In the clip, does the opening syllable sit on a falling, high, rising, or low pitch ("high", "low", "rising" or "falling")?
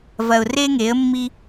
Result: low